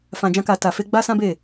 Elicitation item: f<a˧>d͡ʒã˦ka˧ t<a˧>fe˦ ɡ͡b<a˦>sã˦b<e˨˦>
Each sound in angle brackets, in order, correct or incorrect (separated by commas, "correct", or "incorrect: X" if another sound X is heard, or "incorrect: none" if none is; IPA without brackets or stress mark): incorrect: ã˧, correct, correct, incorrect: e˦˨